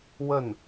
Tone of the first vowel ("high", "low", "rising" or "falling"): falling